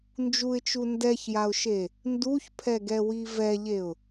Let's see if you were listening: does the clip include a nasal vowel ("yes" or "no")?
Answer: no